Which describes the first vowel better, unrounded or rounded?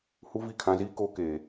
rounded